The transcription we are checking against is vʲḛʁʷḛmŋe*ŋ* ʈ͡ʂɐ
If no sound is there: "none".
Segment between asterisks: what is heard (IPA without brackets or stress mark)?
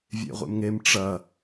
m